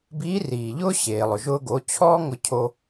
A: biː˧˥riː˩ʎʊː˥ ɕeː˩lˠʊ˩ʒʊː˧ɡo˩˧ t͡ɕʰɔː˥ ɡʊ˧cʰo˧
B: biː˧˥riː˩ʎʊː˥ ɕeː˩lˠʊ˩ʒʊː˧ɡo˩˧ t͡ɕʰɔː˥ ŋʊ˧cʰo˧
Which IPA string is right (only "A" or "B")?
B